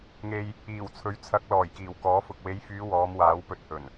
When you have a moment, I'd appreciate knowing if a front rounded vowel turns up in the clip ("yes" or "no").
yes